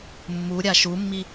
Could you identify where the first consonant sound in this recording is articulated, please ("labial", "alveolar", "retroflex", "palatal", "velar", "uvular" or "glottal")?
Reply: labial